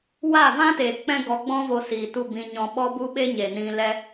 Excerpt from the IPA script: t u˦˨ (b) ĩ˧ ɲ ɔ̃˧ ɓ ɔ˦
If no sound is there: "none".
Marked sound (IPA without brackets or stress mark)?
b